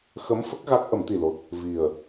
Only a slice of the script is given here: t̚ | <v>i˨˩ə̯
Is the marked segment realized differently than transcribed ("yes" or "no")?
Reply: no